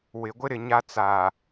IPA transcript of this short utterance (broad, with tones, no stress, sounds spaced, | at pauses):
w ɪ˨ ɡʷ ɪ˦ ɾ ɪ˨ ɲ a˦ t͡s aː˨